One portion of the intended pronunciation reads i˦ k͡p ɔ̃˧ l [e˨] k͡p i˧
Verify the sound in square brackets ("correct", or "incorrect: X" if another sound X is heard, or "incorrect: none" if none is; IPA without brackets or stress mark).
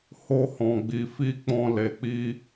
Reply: correct